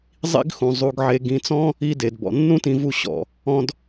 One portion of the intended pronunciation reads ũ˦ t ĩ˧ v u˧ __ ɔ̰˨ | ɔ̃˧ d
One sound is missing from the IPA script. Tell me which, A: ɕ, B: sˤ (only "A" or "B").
A